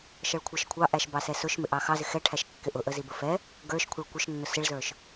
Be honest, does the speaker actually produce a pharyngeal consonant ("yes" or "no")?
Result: no